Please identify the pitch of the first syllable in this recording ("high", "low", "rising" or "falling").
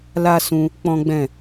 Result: high